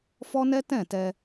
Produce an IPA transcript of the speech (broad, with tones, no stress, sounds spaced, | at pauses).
f ɔ˦ n ɛ˦ t ɛ̃˦˨ t ɛ˧